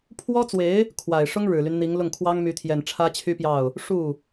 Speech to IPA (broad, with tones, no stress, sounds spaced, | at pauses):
pʰ w ɔ˥ t͡s w e˧˥ ɪ̯ | kʰ w a˨˩ ɪ̯ ʂ ʊ˥ ŋ ɻ ɻ̩˨˩ l y˦ n n̪ i˧˥ ŋ l ʊ˥˩ ŋ kʰ w ɑ˥ ŋ m y˧˥ t̪ʰ j ɛ˨˩ n ʈ͡ʂʰ ä˥ t͡ɕʰ y˥ p j ɑ˥˩ ʊ̯ | ʂ u˥˩